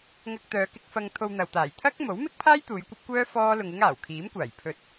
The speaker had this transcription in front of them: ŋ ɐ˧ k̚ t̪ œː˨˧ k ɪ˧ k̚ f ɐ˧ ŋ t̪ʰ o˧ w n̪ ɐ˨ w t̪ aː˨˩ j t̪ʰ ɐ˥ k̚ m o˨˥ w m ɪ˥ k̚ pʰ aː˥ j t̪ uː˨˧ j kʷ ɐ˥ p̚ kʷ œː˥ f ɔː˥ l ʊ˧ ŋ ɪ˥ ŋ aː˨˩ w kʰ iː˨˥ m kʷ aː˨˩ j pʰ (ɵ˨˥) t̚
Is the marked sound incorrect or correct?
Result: correct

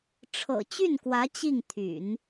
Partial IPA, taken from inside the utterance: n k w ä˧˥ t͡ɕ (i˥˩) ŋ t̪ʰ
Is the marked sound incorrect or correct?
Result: correct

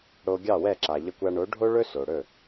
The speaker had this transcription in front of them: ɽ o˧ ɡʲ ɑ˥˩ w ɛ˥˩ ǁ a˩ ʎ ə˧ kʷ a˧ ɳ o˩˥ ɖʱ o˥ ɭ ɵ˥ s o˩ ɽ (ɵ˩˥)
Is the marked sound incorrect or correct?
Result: incorrect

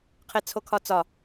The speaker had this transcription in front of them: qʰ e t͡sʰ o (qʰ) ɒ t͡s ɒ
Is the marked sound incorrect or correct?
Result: incorrect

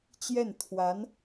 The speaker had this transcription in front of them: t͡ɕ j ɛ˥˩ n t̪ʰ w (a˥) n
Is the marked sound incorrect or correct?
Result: incorrect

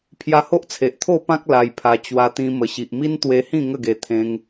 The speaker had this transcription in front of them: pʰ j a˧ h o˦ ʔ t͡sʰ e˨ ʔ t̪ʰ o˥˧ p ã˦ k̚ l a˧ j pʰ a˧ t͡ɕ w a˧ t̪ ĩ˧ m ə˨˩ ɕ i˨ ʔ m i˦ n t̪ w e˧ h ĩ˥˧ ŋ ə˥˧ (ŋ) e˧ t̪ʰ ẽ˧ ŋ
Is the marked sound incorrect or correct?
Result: incorrect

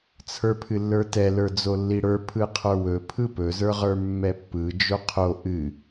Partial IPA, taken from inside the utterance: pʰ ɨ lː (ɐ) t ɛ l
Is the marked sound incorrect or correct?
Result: incorrect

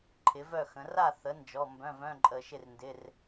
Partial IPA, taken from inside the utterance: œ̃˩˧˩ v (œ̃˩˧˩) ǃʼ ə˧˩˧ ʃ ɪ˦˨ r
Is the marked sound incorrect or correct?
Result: correct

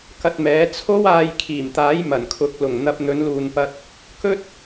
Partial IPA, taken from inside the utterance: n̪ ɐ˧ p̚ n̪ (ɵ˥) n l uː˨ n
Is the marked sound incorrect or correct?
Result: incorrect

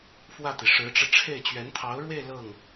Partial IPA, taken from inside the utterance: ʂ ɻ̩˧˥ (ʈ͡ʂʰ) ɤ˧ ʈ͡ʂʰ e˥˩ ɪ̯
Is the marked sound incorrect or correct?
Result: incorrect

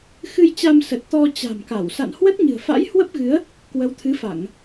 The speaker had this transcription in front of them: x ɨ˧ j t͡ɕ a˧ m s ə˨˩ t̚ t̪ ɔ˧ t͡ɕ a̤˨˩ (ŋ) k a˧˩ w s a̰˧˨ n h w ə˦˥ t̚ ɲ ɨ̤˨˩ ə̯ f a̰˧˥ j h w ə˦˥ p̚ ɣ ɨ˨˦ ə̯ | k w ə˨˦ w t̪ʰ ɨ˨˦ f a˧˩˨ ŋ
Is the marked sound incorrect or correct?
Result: incorrect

